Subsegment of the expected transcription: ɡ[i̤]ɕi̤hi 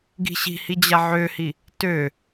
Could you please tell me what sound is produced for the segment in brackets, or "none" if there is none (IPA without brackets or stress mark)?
i̤